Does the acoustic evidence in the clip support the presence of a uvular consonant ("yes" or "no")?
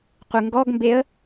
yes